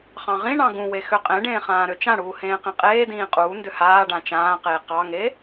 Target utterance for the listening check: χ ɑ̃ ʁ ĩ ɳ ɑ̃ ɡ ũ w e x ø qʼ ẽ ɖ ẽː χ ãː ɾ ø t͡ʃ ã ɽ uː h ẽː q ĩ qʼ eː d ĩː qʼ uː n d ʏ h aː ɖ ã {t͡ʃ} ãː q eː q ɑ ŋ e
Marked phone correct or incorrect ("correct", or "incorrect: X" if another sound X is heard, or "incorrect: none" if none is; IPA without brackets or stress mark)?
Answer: correct